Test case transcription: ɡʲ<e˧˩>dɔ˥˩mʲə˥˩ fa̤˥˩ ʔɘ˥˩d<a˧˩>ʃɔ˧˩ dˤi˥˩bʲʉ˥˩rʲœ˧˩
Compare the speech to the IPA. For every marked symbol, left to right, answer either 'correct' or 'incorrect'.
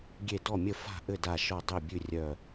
correct, correct

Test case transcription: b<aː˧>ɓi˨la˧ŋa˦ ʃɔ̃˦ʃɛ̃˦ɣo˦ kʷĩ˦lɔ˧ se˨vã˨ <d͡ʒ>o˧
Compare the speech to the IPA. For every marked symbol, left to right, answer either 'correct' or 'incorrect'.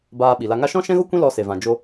correct, correct

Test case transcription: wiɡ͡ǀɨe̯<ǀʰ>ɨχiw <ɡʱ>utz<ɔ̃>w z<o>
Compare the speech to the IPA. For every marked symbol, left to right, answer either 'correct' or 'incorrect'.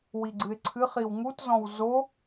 correct, incorrect, correct, correct

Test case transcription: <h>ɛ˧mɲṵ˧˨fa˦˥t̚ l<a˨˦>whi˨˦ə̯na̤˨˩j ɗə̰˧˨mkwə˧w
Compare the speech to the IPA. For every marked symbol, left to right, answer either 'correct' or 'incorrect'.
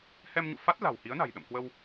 correct, incorrect

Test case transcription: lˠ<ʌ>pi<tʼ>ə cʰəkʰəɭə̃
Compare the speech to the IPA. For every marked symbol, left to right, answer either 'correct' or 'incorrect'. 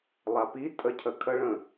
incorrect, correct

